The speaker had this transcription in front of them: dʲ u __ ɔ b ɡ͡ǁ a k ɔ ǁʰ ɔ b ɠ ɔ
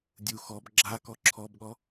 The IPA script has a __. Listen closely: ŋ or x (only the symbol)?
x